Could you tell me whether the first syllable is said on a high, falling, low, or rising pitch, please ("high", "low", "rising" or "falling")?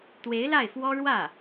rising